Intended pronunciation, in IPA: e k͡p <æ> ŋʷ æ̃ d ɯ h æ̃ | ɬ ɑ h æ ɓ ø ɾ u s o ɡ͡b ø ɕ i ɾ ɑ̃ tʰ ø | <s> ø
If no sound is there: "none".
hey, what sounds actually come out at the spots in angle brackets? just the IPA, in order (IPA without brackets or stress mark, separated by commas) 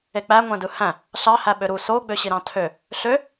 æ, ɬ